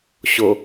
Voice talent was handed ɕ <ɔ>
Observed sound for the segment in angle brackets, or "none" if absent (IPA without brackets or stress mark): o